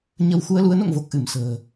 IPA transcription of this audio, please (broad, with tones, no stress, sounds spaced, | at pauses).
ɲ ə˧ w x u˧ ə̯ l u˨˦ ə̯ n o̰˧˨ ŋ v o˨˩ k̚ ʔ ɨ˧˩ m s ə̤ː˨˩